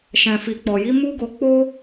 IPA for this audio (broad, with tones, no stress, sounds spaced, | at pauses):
ʃ ɛ̃˨ f i˨ k͡p ɔ˨ j i˨˦ m u˦ ɡ o˧ k͡p o˦